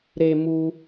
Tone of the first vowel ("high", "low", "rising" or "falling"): high